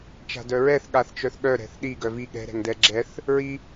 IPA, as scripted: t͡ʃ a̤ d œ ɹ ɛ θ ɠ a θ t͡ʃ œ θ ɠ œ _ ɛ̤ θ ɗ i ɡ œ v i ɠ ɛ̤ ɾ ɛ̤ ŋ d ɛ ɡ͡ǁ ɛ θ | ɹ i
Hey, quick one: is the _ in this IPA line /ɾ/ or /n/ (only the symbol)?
ɾ